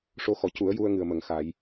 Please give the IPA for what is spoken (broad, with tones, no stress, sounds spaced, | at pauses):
ʂ o˧ x ɔ˨˩˨ c u˨˩˦ ə̯ j u˧ ə̯ ŋ ɨ˨˩ ə̯ m ə˨˩˦ ŋ x a˨˩˦ j